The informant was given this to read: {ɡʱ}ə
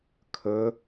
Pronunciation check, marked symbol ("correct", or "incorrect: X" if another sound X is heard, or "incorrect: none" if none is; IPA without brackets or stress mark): incorrect: kʰ